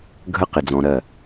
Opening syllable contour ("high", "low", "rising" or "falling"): high